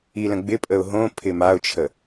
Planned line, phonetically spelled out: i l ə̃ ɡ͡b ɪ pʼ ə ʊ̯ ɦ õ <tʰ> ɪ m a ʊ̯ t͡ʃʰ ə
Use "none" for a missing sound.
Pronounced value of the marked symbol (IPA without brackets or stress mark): pʰ